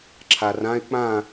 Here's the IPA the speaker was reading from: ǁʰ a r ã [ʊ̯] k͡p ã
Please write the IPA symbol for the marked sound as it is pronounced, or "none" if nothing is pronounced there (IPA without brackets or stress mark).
ɪ̯